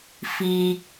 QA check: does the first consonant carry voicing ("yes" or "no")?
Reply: no